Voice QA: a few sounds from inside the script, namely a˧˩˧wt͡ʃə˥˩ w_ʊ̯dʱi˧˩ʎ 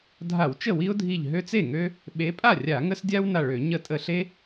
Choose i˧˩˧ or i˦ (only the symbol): i˦